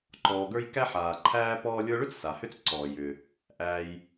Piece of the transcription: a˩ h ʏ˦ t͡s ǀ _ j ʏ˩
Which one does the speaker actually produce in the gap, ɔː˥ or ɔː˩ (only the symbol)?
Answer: ɔː˩